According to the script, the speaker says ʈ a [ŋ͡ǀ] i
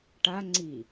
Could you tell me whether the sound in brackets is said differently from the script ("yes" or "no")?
no